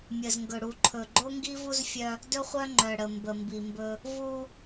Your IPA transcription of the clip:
mʲ ə˨ z ŋ ɡ ɵ˨ ɽ u˨ ǃʰ ɵ˨ ɡ͡ǃ o˦ ŋ ɡ i˦ v u˦ z fʲ œ˦ | d ɵ˦ χʷ œ˦ ŋ͡ǃ œ˨ ɽ ə˨ m b ə˨ m b i˨ m b ɵ˦ | v u˦

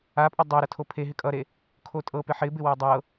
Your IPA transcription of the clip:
a pʼ ʌ dˤ o ɾ ʌ tʰ o pʰ e ɦ ɪ kʼ ʌ ɾ e | kʰ o tʼ ɤ p ɪ ħ ɪ b ɪ w ɤ dˤ ɤ

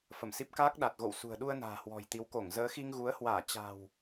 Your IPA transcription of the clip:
f ə˧˩ m s i˦˥ p̚ k aː˦˥ k̚ ɗ a˨˩ t̚ ɣ o̰˧˨ w s ṳ˨˩ ə̯ ɗ u˧ ə̯ n a̤ː˨˩ h w ɔ̤˨˩ j t̪ i˨˦ w k o˧˩ ŋ z əː˨˦ x i˧ ŋ ɣ u˨˦ ə̯ h w aː˧˩ t͡ɕ a̤˨˩ w

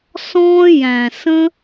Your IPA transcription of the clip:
s ɔ̃ː˦ j æ̃˨ s ə̃˧

